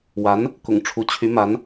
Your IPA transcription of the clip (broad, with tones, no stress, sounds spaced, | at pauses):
w a˧˥ n | k ʊ̰˨˩ ŋ ʈ͡ʂʰ u˧˥ t͡ɕʰ y˧˥ m a˧˥ n